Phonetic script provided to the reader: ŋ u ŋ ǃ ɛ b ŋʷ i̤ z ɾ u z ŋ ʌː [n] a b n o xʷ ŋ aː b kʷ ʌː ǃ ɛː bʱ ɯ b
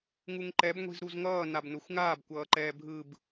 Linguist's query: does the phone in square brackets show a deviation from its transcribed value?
no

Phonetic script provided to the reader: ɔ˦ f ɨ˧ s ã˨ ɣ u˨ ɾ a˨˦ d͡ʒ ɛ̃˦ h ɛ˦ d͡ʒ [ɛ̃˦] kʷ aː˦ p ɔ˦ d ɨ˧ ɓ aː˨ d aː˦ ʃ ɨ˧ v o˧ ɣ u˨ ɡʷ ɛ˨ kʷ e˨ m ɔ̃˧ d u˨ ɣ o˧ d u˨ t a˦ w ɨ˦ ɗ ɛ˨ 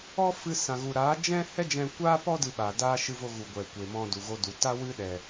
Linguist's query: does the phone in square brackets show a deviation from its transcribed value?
yes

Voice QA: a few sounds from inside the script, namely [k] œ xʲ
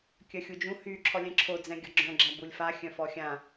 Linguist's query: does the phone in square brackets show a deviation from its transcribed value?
yes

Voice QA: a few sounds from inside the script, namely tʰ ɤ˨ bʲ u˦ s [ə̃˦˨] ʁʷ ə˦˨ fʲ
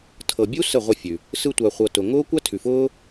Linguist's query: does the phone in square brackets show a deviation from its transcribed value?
yes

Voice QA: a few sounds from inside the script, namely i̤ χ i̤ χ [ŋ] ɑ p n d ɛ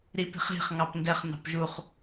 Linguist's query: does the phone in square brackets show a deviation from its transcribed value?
no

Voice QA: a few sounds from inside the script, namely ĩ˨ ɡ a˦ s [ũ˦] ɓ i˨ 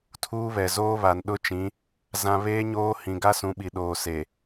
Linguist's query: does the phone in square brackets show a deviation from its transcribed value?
yes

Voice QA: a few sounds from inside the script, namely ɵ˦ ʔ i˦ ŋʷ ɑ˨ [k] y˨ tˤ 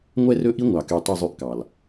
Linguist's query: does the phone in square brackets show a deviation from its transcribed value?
no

